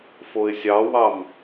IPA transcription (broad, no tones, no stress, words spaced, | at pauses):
foɪ̯sʲɑwɑm